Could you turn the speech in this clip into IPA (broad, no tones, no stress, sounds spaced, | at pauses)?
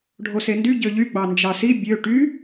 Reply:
ɖʱ o s e n d y ɟ ø ʎ y ɡ͡b ɑ n d͡ʒ ɑ s i bʲ ø ʈ y